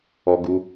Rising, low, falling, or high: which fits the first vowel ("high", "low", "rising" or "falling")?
low